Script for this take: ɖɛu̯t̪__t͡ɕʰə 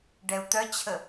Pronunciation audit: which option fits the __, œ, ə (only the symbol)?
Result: œ